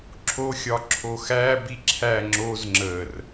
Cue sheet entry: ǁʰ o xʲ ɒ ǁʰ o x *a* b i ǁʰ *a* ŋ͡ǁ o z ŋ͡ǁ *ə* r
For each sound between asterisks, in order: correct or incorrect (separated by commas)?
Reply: incorrect, incorrect, correct